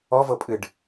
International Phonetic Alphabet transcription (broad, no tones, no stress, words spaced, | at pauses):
ɔvɤpʼɨɖ